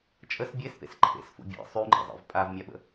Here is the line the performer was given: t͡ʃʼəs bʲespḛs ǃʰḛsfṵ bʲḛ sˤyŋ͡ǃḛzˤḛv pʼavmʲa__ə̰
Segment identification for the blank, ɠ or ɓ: ɓ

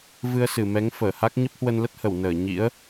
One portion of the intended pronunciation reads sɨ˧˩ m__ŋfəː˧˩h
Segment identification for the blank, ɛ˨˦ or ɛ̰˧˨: ɛ˨˦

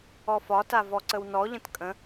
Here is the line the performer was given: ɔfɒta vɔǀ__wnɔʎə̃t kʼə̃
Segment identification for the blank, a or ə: ə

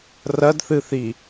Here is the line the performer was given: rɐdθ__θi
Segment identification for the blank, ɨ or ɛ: ɨ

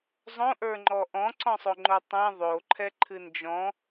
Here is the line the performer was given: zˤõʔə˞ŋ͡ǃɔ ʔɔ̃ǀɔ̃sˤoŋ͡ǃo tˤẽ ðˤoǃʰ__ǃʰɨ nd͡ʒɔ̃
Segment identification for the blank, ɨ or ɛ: ɛ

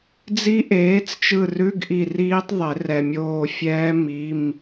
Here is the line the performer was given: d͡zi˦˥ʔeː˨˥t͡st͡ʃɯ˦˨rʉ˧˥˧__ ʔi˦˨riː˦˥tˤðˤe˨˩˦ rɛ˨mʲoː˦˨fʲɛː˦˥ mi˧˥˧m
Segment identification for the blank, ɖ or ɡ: ɡ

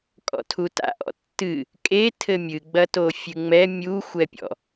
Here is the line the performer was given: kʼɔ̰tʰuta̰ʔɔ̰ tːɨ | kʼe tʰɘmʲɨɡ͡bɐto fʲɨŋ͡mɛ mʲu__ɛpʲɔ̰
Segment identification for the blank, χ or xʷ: xʷ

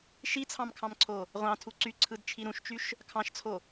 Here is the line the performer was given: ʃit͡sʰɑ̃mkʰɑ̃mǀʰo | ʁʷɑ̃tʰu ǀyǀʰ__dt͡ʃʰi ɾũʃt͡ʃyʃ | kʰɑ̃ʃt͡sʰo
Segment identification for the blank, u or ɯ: ɯ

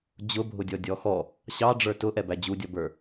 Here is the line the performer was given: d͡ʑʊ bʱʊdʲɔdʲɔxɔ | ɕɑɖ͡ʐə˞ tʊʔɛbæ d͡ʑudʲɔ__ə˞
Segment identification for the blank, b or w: b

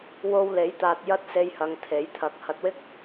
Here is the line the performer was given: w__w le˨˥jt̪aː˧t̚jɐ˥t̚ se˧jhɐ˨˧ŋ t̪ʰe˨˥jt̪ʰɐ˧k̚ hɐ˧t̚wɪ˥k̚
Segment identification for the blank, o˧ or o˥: o˧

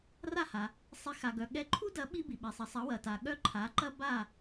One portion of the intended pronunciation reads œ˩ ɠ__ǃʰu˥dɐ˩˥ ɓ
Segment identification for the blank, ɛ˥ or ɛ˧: ɛ˧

